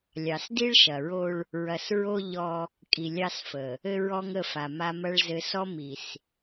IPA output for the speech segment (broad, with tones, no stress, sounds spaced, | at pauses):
lʲ ɑ˨ s d i˦ ɭ ʃ ɐ˨ ɹ o˦ ɭ | ɹ ɐ˨ s ɹ o˦ ʎ ɔ˦ | kʼ i˨ lʲ ɑ˦ s f ə˨ | ɘ˦ ɹ ɔ˦ ŋ ə˦˨ f a˨ m a˦ m ɐ˦ ɭ z ɘ˨ s ɔ˦ m i˨ s